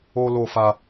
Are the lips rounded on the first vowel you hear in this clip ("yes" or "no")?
yes